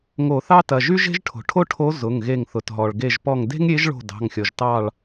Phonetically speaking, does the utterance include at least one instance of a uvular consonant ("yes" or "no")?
no